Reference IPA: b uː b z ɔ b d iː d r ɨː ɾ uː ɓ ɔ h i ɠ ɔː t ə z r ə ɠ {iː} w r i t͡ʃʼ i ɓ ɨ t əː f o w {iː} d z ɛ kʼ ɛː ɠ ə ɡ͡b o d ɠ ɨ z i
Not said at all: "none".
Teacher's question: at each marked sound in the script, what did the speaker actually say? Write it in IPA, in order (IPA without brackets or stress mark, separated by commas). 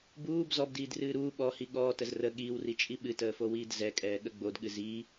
iː, iː